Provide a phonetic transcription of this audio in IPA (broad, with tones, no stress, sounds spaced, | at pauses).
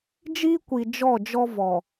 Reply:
d͡ʒ iː˦ kʷ i˨ d͡ʒ ɔ˦˨ d͡ʒ ɔ˦ v ɔ˨